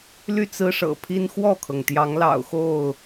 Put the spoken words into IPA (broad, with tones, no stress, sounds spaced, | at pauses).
l y˥˨ t͡s ɹ̩˦ ʂ ɤ̰˨˩ pʰ i˦ n x w ɔ˥˨ kʰ ɤ˩ ŋ t̪ j ɑ˨˦ ŋ l ɑ̰˨˩ ʊ̯ x o˥˨ ʊ̯